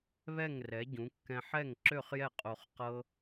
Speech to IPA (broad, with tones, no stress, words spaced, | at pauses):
βɛ˥˩ŋrɛ˩˥ɟũ˩˥kːɛ̃˧ ħɛ˥˩ŋǁø˥˩χjɛ˥˩ qʼo˧χqɤ˥